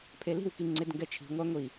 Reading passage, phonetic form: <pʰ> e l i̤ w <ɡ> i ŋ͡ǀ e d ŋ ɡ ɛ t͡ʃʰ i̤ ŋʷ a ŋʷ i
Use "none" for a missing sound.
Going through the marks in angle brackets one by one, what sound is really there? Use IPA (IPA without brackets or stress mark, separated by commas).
pʰ, k